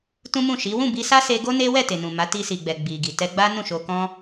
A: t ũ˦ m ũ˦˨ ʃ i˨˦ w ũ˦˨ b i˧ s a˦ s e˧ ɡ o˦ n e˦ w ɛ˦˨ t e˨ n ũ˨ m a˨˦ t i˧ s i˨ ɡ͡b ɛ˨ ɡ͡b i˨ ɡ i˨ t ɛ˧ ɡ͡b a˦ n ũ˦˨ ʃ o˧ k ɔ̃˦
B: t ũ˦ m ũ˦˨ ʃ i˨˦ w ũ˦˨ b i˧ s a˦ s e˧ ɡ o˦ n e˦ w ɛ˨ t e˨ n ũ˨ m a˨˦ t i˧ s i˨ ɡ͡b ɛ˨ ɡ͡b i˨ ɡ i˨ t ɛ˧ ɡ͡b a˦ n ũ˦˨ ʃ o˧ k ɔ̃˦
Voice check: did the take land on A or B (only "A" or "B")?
A